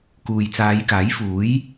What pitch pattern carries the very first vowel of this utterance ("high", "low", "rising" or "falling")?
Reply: low